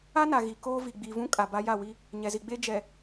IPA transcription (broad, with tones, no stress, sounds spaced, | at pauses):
a˦ n a˨ ɣ i˨ k oː˦ v i˨ ɡ͡b i˨ v ũ˦ kʼ a˨ b a˦ j a˦˨ w i˦ | ɲ ɛ˨ z i˨ ɡ͡b eː˦ d͡ʒ ɛ˨